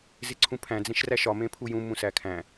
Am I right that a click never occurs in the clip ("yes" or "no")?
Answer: no